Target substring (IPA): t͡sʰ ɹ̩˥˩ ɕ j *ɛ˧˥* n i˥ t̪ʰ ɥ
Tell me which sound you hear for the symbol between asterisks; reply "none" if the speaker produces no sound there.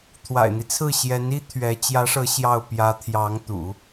ɛ˧˥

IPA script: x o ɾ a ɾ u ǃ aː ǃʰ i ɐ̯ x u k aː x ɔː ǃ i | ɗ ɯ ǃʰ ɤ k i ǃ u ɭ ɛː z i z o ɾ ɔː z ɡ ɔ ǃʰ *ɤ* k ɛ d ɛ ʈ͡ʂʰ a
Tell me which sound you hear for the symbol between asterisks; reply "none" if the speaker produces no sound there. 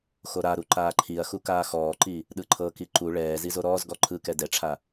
ɯ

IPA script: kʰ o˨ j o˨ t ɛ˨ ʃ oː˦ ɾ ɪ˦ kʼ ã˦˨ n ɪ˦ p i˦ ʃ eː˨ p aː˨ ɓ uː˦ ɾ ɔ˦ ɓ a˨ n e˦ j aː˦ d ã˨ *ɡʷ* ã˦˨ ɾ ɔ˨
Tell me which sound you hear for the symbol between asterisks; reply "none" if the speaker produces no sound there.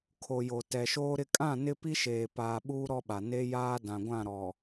ɡʷ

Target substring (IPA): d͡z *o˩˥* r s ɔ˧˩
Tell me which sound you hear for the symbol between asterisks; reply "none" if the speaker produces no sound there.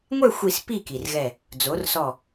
o˩˥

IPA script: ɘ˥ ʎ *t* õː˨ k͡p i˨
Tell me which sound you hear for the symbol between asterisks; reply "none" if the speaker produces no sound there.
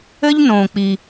n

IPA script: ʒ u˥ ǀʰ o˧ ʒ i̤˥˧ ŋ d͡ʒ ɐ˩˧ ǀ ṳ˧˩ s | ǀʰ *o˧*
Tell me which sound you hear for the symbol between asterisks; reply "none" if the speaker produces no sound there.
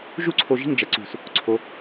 o˧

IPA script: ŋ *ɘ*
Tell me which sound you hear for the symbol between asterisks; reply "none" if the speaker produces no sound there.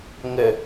ɘ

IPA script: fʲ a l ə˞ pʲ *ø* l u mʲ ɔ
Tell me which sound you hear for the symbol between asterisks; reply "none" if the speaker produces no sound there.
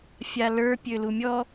ø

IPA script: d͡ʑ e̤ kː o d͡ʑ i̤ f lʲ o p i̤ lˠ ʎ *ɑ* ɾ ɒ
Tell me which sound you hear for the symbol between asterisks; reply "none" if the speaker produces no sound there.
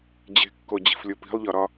ɒ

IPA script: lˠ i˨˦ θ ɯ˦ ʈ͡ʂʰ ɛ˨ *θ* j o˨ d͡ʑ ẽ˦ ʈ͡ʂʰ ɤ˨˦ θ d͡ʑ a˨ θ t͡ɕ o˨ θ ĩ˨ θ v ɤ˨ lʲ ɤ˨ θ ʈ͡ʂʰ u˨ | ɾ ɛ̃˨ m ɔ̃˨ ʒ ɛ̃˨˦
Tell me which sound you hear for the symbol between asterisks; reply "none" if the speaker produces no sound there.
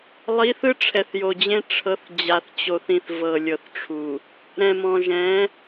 θ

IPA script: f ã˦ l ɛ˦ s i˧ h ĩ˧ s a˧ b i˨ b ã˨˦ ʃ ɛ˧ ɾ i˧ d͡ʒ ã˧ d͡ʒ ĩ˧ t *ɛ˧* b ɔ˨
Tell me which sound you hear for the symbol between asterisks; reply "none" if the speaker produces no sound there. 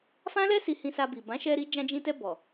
ɛ˧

